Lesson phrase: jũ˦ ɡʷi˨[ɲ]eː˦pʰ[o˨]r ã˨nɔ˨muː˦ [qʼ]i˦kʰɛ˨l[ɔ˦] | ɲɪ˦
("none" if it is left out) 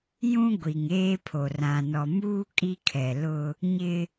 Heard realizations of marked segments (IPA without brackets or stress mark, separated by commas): ŋ, o˨, kʼ, ʊ˦